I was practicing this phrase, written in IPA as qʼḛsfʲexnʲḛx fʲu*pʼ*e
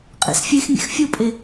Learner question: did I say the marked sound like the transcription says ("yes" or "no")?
yes